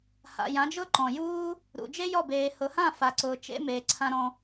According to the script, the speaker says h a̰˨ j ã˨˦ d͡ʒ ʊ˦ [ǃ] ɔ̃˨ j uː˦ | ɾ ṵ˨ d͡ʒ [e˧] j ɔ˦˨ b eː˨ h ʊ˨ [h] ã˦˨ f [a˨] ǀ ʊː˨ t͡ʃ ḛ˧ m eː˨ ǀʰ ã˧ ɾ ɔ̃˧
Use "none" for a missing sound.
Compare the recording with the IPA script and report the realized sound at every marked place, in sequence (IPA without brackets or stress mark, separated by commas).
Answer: ǃ, e˦, h, a˨